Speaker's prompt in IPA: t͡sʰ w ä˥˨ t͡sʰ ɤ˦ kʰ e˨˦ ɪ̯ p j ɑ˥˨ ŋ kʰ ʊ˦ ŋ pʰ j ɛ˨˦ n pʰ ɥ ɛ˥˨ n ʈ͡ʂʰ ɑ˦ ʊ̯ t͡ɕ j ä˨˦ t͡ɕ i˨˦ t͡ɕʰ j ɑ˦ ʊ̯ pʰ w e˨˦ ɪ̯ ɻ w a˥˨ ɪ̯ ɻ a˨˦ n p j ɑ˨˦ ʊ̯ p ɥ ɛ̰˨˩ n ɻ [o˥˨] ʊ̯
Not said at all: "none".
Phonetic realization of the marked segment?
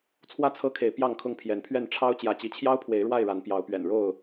o˥˨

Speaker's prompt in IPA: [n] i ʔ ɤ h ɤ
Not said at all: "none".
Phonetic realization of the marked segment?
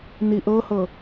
n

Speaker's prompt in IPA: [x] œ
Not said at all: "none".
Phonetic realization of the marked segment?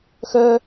x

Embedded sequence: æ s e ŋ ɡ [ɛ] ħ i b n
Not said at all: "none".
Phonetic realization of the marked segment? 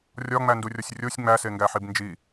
æ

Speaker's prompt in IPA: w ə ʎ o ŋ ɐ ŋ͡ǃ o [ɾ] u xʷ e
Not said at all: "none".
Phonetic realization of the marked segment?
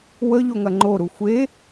ɾ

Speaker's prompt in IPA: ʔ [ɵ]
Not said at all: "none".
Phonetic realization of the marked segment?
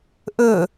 ɵ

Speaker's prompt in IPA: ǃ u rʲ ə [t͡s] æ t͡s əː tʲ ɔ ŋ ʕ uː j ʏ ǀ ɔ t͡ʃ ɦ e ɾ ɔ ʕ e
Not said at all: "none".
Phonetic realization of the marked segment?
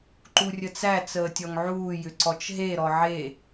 t͡s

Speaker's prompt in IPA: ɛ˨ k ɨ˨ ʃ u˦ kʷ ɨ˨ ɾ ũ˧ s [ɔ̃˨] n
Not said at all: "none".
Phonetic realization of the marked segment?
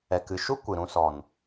ɔ˨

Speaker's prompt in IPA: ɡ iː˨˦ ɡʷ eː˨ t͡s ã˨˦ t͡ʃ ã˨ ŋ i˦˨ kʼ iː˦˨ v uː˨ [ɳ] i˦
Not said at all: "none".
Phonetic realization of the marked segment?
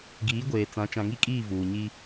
ɲ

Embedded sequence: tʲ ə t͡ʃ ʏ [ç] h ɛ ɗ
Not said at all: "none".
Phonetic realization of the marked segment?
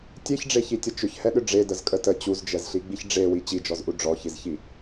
ç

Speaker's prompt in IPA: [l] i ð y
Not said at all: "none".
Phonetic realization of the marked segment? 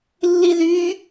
lː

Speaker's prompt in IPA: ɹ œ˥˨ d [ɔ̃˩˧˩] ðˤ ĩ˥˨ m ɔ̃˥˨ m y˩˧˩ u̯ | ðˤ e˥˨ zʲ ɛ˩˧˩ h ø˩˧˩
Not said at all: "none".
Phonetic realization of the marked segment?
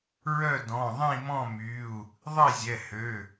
ɔ̃˩˧˩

